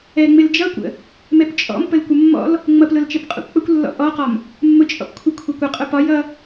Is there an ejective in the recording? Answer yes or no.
yes